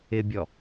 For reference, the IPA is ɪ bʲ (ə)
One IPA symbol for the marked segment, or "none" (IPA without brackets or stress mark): ɔ